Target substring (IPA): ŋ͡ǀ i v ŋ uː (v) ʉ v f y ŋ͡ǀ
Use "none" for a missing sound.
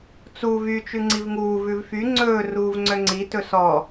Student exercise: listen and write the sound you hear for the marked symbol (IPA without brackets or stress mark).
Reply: v